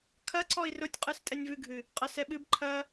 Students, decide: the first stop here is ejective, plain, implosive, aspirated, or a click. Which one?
aspirated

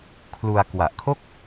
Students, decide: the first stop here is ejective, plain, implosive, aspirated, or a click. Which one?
aspirated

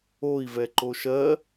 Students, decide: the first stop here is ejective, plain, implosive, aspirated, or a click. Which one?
click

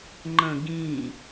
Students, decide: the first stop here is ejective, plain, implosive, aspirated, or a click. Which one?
click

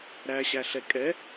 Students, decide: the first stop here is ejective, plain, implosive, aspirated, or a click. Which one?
ejective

